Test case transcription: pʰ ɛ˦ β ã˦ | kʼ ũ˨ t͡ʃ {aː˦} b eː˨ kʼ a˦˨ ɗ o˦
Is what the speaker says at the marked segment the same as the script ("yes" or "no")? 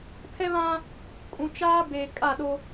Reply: yes